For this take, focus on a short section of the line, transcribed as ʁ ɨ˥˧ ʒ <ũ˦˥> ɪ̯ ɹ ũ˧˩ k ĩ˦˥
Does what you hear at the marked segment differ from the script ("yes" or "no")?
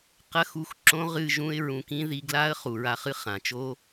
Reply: no